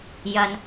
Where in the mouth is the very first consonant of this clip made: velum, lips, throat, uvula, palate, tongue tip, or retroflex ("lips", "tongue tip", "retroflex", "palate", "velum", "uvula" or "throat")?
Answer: palate